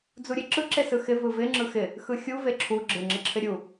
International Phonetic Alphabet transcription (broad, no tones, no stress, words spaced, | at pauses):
d͡zuɾʲeǁɯ ǁesɯxɪ vɯvɪ ŋ͡ǁɯxɪ | xɯxʲu veǁʰu ɡ͡ǁɪ ŋ͡ǁɪǁʰɪɾʲu